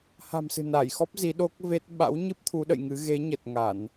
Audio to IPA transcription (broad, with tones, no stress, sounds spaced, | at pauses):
h a̤˨˩ m s ɨ̤˨˩ n a˧˩ j x ɔ˦˥ p̚ z i˨˦ ɗ o˦˥ k̚ v e˦˥ t̚ ɓ a̰˧˥ w ɲ ɨ˦˥ p̚ t̪ʰ u˨˦ ɗ ə̰˧˨ j ŋ ɨ˨˦ ɣ e˨˦ ɲ ə˨˩ t̚ ŋ a˧˩˨ n